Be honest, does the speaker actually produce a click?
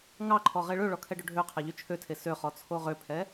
yes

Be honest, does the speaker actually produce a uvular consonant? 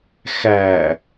no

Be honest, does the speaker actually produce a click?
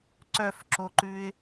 yes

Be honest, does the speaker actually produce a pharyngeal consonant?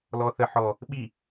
yes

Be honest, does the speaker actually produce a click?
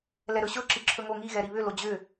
yes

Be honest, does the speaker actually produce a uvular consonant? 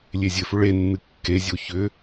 no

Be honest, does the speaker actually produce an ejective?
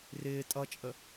yes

